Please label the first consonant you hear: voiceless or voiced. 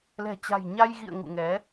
voiced